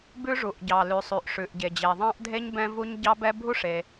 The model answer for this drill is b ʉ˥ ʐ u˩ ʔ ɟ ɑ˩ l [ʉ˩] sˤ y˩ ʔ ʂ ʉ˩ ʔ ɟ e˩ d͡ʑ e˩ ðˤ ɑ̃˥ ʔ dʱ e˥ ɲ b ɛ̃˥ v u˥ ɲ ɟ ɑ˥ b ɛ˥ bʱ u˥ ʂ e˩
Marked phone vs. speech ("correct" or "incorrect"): correct